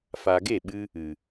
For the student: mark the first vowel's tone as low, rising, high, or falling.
low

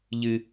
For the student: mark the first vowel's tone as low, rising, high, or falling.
high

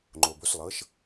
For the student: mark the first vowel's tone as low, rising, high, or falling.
low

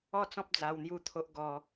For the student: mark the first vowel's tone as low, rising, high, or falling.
falling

